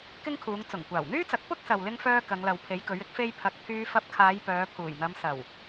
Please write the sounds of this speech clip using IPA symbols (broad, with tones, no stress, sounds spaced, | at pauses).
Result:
k ɪ˥ ŋ kʰ uː˨˧ ŋ t͡s ʊ˨˩ ŋ kʷ aː˨˩ w n̪ yː˥ t͡s ɐ˨˥ k̚ p ʊ˥ k̚ s ɐ˨ w l ɪ˧ ŋ f œː˧ k ɐ˨˧ ŋ l ɐ˨ w pʰ e˨˥ j k ɵ˨˥ ɥ ɪ˥ k̚ f e˥ j pʰ ɐ˨ k̚ pʰ yː˧ f ɐ˧ p̚ kʰ aː˨˧ j p œː˨˧ pʰ uː˨˩ j n̪ ɐ˨˧ m s ɐ˨˩ w